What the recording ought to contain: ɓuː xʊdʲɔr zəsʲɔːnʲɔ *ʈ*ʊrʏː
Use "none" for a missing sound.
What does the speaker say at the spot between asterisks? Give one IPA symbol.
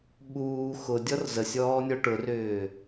ʈ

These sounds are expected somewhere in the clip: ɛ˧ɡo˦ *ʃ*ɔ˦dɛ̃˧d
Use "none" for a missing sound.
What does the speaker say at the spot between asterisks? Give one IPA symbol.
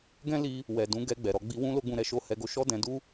ʃ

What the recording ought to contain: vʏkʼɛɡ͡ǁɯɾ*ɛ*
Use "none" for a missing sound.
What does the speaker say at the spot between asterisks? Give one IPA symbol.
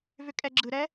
ɛ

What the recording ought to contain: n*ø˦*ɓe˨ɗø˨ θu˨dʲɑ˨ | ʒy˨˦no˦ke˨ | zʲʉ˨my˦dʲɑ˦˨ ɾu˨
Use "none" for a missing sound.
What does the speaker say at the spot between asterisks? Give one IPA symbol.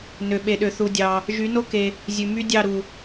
ø˨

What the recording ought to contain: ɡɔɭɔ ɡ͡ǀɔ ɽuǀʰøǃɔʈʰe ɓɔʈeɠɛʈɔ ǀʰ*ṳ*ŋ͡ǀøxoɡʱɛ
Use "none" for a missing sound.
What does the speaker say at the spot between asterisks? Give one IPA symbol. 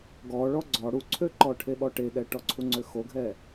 u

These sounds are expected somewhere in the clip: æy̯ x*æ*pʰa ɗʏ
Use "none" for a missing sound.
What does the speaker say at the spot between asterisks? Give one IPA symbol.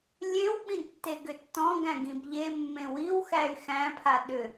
æ̃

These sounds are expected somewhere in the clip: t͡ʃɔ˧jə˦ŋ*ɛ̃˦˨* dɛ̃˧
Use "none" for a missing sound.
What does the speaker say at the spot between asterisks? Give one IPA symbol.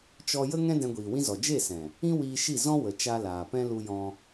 ɛ̃˦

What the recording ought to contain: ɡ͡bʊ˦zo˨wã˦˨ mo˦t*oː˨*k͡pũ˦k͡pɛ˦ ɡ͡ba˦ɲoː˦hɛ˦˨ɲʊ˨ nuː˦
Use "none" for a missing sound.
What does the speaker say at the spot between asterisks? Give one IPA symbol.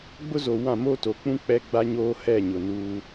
o˨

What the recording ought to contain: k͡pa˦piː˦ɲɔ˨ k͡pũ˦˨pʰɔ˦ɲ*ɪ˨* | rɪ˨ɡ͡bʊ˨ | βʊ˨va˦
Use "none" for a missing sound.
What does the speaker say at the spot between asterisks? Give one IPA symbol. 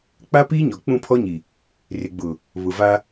i˨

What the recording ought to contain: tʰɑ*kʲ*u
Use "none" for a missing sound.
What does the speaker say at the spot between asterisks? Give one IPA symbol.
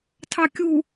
kʲ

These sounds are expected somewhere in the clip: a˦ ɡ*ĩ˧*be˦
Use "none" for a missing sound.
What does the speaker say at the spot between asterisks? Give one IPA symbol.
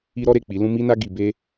i˧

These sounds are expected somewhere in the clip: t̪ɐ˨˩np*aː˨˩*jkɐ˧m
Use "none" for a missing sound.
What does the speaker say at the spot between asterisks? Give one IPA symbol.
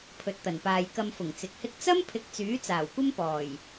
aː˨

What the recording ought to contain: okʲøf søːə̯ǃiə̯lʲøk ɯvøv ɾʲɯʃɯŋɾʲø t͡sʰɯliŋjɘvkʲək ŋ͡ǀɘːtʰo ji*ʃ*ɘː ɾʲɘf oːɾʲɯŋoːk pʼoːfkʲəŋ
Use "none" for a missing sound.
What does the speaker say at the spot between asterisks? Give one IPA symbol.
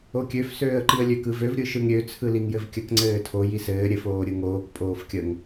s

